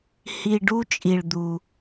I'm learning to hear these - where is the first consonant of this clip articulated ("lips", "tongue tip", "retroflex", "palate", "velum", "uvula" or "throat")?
throat